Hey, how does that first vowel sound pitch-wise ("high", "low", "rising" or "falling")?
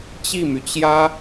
falling